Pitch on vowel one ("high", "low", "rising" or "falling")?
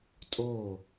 falling